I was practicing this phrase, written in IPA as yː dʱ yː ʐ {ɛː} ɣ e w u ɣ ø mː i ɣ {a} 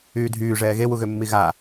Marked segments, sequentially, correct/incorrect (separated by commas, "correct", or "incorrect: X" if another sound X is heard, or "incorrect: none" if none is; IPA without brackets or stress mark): correct, correct